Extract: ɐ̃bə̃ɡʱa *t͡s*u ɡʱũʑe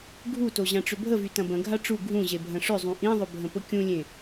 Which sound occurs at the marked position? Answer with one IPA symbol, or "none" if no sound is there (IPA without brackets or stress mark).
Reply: ʈ͡ʂ